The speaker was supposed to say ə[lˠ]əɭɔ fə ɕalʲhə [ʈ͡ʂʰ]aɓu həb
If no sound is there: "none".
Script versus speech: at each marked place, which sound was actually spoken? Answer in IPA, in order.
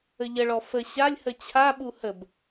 ʎ, t͡ɕʰ

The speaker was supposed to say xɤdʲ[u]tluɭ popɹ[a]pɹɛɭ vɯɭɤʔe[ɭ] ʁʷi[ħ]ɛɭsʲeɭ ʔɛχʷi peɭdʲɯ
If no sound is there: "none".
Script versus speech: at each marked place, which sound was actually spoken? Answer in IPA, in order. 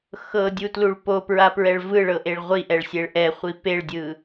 u, a, ɭ, ʔ

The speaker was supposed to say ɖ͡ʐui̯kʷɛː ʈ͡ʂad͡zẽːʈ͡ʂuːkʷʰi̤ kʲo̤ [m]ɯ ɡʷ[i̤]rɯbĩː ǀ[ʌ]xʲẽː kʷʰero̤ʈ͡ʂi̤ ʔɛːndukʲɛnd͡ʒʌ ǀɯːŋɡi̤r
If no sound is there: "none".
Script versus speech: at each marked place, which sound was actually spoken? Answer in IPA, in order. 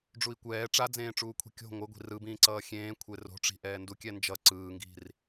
ŋʷ, i̤, ʌː

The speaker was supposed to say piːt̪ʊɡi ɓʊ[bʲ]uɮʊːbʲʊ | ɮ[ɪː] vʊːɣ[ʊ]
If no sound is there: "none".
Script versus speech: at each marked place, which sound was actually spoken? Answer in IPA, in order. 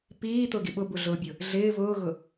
b, ɪː, ʊ

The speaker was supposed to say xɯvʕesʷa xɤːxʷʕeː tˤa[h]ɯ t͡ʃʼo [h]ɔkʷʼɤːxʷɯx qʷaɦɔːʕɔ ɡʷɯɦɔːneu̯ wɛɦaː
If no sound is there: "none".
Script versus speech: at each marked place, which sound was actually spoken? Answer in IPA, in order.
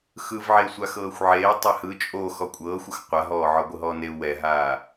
h, x

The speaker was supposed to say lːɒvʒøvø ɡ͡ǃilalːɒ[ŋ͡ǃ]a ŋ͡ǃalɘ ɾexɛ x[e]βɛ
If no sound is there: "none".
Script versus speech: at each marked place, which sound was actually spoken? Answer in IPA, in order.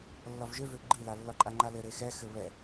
ǃʼ, ɘ

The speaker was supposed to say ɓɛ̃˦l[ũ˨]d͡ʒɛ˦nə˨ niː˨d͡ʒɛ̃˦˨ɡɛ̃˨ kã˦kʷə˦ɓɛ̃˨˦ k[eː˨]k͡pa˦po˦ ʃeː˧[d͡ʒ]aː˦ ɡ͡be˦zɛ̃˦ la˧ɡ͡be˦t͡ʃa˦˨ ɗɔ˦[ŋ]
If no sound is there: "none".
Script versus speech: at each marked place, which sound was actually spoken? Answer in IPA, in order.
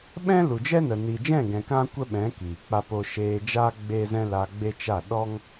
u˨, iː˨, d͡ʒ, ŋ

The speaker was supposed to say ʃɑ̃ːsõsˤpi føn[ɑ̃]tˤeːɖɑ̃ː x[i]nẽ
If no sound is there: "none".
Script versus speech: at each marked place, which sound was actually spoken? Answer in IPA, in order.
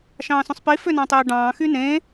ɑ̃, y

